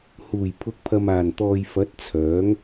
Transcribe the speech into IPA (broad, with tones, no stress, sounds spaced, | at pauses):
h uː˨˩ j pʰ ʊ˨˥ k̚ pʰ ɐ˨ m aː˨˩ n t̪ ɔː˨ j f ɐ˨˥ t̚ t͡sʰ œː˨˥ ŋ